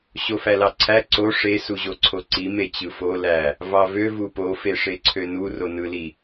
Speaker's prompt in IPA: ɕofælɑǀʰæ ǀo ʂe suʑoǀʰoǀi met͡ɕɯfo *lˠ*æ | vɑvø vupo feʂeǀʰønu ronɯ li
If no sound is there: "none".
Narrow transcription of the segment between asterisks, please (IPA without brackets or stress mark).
l